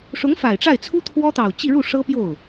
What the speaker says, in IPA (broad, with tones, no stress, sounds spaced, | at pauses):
ʂ ʊ˧˥ ŋ f a˨˩ ɪ̯ ʈ͡ʂ a˥˩ ɪ̯ t͡sʰ u˥ t̪ʰ w ɔ˥ t̪ ɑ˨˩ ʊ̯ t͡ɕ i˥˧ ɻ u˥˩ ʂ ɤ˥ p j o˥˩ ʊ̯